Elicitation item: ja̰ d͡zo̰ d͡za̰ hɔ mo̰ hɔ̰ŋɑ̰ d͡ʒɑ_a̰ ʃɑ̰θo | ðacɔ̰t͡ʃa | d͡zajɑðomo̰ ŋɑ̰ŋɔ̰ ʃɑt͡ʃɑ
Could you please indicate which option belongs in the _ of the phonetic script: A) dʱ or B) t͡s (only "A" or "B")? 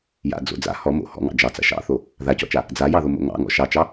B